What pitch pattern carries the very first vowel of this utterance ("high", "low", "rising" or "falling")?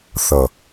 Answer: low